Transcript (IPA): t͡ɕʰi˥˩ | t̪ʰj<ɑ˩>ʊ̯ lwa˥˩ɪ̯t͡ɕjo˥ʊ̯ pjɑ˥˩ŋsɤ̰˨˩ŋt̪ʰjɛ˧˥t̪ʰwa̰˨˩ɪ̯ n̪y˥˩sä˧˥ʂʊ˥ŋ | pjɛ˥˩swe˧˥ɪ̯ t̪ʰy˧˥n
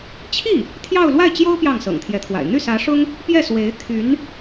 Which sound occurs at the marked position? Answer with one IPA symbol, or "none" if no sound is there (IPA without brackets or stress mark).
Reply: ɑ˥˧